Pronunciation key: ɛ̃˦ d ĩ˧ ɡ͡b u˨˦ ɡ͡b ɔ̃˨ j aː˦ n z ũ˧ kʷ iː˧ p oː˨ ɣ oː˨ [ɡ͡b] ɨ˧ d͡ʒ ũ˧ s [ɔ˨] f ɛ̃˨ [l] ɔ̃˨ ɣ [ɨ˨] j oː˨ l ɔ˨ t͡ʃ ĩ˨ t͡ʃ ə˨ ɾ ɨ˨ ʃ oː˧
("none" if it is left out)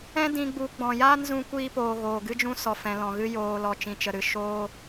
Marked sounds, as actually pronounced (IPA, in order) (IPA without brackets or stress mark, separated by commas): ɡ, ɔ˨, l, ɨ˧